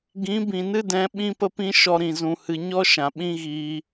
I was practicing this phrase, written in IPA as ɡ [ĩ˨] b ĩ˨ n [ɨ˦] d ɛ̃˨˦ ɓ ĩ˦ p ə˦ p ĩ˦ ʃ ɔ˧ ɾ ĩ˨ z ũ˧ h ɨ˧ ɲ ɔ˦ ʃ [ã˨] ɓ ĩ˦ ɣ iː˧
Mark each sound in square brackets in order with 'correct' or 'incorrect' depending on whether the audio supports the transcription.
incorrect: ĩ˨˦, correct, correct

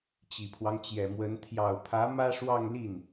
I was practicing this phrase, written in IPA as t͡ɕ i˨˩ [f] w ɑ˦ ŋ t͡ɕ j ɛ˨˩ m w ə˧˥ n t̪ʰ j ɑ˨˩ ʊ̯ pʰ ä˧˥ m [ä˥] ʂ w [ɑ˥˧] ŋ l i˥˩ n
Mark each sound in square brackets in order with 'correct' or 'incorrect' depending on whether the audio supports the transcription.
incorrect: pʰ, correct, correct

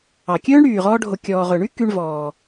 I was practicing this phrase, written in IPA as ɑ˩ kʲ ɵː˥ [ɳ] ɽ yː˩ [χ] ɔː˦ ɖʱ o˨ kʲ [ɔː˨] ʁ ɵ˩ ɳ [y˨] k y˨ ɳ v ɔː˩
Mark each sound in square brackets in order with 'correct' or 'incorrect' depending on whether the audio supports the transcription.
correct, incorrect: ʁ, incorrect: ɔː˩, incorrect: y˥

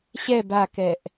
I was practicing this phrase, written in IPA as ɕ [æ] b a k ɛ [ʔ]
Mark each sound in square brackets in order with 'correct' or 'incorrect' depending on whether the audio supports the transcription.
incorrect: ɛ, correct

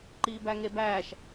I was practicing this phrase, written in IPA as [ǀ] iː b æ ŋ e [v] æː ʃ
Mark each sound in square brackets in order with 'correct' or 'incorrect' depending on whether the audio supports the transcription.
incorrect: ǃ, incorrect: b

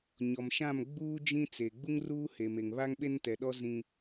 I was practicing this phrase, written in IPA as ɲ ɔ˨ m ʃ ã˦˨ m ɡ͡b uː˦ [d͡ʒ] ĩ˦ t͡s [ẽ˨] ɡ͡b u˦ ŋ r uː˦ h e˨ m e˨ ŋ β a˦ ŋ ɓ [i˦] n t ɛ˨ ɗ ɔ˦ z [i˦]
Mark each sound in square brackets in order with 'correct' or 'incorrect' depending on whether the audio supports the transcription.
correct, incorrect: e˨, incorrect: e˦, incorrect: ĩ˦

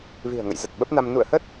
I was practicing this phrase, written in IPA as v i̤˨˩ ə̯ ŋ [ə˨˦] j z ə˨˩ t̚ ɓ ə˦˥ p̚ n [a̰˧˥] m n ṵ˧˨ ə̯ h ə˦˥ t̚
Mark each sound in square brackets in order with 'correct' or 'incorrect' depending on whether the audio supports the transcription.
incorrect: ə̰˧˨, incorrect: a˧

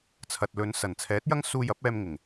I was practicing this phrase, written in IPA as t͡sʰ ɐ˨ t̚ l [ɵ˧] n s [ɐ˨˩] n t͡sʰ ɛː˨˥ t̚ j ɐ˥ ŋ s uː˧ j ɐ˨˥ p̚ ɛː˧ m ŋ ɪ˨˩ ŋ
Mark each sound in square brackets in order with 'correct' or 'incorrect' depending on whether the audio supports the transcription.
incorrect: ɵ˨˧, correct

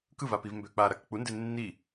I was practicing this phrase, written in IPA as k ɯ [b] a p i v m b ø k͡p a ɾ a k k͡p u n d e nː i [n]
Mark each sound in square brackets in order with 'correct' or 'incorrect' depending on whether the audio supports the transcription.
incorrect: v, incorrect: none

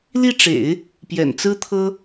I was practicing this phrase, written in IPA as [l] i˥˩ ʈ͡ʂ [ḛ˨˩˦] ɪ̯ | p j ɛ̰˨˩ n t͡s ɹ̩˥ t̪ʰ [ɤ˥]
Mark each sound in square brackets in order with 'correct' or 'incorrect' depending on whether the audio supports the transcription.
correct, correct, correct

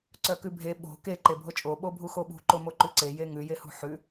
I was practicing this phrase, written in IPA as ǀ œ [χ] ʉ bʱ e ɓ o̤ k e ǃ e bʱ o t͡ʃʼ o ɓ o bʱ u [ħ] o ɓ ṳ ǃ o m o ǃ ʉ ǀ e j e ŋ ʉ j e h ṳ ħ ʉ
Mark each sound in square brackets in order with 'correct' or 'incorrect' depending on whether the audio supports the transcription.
incorrect: k, incorrect: x

